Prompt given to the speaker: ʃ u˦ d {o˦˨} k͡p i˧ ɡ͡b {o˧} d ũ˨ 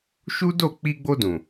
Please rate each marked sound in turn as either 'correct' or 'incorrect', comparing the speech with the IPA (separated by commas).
correct, correct